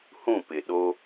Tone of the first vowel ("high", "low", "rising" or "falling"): falling